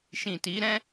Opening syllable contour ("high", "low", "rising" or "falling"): low